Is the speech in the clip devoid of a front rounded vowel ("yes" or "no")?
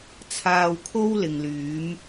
no